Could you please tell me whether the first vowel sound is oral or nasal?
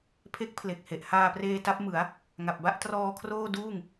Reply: oral